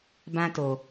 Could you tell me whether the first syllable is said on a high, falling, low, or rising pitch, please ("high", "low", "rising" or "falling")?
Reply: high